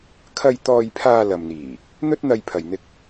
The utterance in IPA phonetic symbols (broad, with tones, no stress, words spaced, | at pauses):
kʰɐ˧j t̪ɔː˧jpʰaː˧lɐ˨mn̪iː˨˩ | n̪ɵ˥t̚n̪ɐ˧jpʰɐ˨jn̪ɪ˧k̚